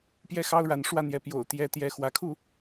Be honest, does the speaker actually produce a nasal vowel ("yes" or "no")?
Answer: no